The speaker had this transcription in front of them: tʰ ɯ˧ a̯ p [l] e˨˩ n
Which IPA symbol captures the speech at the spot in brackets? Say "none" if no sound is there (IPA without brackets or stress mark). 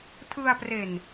r